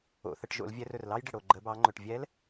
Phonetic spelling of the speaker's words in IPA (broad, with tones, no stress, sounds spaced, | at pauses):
o̰˩˧ θ ə˩˧ ʈ ʒ o̰˩˧ l vʲ ɛ˧ r ɵ˩ r l ɑ˥ j ɖ ɪ˩ ɽ o˩ ɡ͡ǃ ə˩˧ b ɑ˩˧ ŋ͡ǃ ɵ˩ ʈ vʲ ɛ˧˥ l